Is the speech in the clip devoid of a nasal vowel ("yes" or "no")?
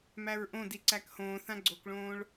no